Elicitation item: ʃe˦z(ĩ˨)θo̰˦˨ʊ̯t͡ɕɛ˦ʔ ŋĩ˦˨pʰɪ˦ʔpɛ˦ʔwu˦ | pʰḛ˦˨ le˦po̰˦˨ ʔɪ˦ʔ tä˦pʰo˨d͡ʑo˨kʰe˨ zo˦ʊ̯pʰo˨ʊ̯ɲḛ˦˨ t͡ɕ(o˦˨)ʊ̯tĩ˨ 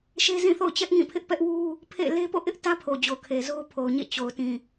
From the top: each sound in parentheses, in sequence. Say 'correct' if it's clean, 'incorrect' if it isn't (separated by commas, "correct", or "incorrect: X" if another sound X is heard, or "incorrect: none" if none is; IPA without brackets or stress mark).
incorrect: ĩ˦˨, incorrect: o˨